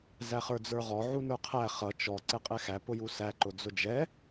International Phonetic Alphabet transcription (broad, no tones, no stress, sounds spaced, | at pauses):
z æ χ ə˞ d͡z ə˞ ʁ ɔ ʕ u n ə˞ qʰ æ χ ʌ t͡ʃ ɔ ǀ ɛ qʼ ɛ x æ p ʊ j u s æ ǃ ʊ d͡z ʊ d͡ʒ ɛ